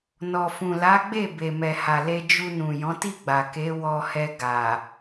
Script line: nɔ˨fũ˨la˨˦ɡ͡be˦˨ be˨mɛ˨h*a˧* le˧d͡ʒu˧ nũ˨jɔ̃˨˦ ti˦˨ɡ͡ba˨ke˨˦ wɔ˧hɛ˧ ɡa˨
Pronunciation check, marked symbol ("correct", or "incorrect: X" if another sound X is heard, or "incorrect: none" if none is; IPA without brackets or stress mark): incorrect: a˨